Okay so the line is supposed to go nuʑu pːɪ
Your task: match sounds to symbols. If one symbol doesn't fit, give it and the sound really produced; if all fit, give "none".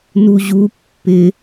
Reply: none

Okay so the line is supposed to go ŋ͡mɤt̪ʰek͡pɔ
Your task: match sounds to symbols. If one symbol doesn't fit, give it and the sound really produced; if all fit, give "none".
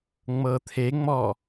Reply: k͡p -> ŋ͡m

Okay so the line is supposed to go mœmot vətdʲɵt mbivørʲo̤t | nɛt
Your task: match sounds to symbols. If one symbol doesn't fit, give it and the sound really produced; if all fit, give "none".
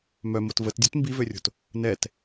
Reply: ɵ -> ø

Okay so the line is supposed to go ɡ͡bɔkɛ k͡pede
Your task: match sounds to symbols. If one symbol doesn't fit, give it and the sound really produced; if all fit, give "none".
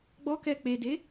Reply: none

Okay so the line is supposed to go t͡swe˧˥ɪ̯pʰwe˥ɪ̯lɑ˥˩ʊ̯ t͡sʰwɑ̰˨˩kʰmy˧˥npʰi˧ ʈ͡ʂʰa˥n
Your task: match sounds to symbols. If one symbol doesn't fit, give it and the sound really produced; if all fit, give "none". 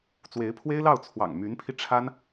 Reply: kʰ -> ŋ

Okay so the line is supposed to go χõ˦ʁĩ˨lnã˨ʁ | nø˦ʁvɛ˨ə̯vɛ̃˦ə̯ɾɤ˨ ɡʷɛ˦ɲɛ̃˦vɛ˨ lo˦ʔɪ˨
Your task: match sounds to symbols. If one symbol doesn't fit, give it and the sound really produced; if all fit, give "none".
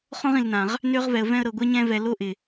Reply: none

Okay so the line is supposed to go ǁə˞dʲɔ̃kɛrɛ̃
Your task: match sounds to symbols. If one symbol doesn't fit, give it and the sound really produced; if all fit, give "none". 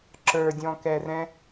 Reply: none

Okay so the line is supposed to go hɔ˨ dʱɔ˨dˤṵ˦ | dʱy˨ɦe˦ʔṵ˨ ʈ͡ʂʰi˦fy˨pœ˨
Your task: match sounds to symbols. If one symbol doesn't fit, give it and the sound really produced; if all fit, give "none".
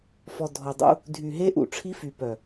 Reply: h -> f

